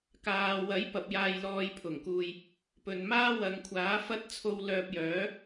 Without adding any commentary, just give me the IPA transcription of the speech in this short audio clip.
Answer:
kaː˨wɐ˨˥jpɐ˨p̚ jaː˧jlɔː˧jpʰʊ˨˩ŋkuː˧j | pɵ˨nmaː˥ wɐ˨ŋkʷʰaː˨˥fɐ˥t̚t͡sʰo˧w lœː˧p̚jœː˨˥

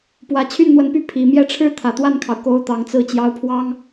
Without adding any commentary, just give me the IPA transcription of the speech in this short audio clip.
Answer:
pwä˨˩t͡ɕʰy˥˩nn̪wə˧˥npy˥˩ pʰi˨˩mjɛ˥˩ʈ͡ʂʰɻ̩˥ t̪ʰä˨˩t̪wa˥˩nkʰɑ˩ʊ̯ ko˧˥ʊ̯ t̪ɑ˨˩ŋt͡sɹ̩˥˩ t͡ɕjɑ˧˥ʊ̯pʰwɑ˥ŋ

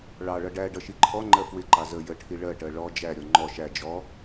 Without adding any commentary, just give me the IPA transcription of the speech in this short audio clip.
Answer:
ɭɑɭʌ ɖæ ɖʌʃiǃʰɔŋ͡ǃɜ fwɪǃɑ zə jəʈʰi ɭɜʈɜ ɭɔ d͡ʒæɾʲɔ ŋ͡ǃɔ ʃæ d͡ʒɔ

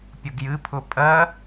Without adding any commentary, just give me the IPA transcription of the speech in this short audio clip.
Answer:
pʲʊɡjɨpʰʊ pʼɜ

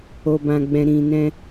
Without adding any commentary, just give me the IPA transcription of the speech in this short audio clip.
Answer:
o˨bã˨ɡ͡bɛ̃˨ ɾĩ˨nɛ̃˧

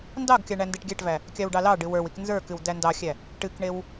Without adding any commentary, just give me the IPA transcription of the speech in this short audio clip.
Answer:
ndɑɡkʲɑ ɳændeʈɡʲæʈvæ | kʲɑwɖɑlɑɖɨ wə˞wik nzə˞kɨw dændɑxʲæ | ʈɨkɳew

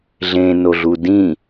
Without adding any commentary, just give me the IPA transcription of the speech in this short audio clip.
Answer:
ɮẽnoɮu dĩ

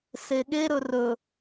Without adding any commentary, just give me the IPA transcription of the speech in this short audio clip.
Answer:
seɠe ɾɵrɵ

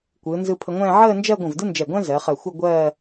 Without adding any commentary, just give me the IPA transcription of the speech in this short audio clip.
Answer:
kʷɯː˩˧nzɯ˧pʰə˧ŋʷɛ̃ː˥˧ ʕəː˥˧nd͡ʒɜ˥˧ɡʷə̃˧˩v dɯ˥nd͡ʒɛ˧˩ ɡʷɛ̃˥ zɜ˩˧χɜ˧˩xʷɯ˥˧ ɡʷɜː˥˧

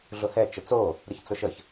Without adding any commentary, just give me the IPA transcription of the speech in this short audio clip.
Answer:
ɮʊhɛ t͡ʃət͡so | ɾɨçt͡sʊʃəç

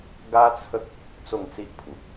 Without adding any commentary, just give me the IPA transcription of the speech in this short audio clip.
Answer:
ɡa˦t͡sʰə˦k̚ | t͡so˥˧ŋt͡si˦ʔpʰu˨p̚

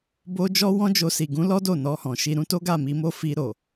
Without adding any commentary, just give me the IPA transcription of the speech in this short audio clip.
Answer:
bo˧ d͡ʒɔ˦wɔ̃˦ d͡ʒo˧si˨ ɡũ˨˦lɔ˦ do˦˨ nɔ˧hɔ̃˨ʃi˧ ɾũ˦to˦ɡa˦˨ mi˧mo˦ fi˧ɾo˨

